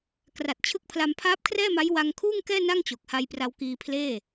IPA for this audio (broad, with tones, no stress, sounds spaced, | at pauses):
k r a˨˩ t̚ t͡ɕʰ ɯ˦˥ k̚ pʰ l a˧ m pʰ aː˦˥ p̚ kʰ r ɛː˥˩ m a˦˥ j w a˧ ŋ kʰ uː˥˩ ŋ k ɛː˥˩ n a˥˩ ŋ t͡ɕ o˨˩ k̚ h a˧ j p r a˧ w k iː˧ pʰ l eː˥˩